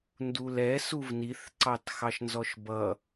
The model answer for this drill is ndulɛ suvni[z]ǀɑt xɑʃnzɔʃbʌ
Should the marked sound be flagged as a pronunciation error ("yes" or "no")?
yes